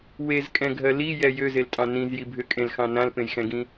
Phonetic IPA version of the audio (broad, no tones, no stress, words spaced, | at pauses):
wezkʼɛ̃ɡʱɜ lijɛ jøzeltʼɑ̃ nĩzji bʱʏkʼẽlxɑ̃ nãlpẽjxɛ̃ɡĩ